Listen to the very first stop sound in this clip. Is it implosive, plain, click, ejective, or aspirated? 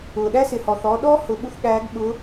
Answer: implosive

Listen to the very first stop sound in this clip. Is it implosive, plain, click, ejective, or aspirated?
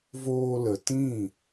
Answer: plain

